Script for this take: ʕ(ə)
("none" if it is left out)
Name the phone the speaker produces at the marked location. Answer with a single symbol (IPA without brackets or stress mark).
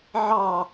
ɑ